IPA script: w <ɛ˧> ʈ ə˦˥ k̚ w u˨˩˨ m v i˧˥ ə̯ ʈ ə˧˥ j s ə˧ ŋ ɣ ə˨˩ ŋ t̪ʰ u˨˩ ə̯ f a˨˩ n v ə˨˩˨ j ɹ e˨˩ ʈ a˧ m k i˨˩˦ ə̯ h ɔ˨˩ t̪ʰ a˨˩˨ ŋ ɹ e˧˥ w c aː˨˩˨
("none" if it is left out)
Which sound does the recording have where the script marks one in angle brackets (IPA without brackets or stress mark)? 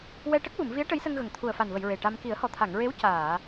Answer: ɛ˧